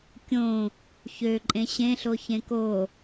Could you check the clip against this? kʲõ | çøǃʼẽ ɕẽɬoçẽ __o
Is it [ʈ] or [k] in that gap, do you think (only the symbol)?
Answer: k